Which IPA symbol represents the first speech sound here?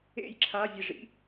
ḛ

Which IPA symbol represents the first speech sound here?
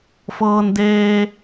f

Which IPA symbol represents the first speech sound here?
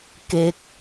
k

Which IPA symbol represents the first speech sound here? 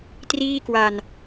t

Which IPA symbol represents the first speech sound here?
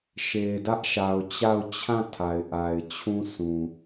ʃ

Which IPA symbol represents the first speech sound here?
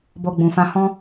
b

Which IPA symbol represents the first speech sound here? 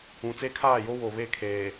ũ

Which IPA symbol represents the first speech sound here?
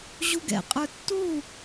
ʑ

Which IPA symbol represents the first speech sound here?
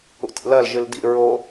ṵ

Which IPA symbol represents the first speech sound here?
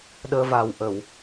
ɗ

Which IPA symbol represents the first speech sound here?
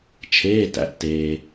t͡ʃʰ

